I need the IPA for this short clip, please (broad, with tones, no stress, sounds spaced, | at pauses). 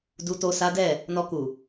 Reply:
d u˨ t o˨ s a˨˦ d ɛ˦˨ | n ɔ˨ k u˨